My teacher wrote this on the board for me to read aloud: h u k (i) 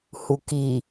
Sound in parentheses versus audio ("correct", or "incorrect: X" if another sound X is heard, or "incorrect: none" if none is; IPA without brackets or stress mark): correct